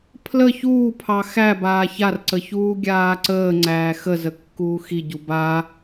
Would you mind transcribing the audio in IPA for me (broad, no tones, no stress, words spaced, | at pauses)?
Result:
pʰlə çuːpʰɑ xæbaː çarǀə çuːɡʲaːǀəːŋ͡ǀæː xəzə kːuːxiɟu ba